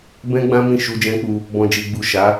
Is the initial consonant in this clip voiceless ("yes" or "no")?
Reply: no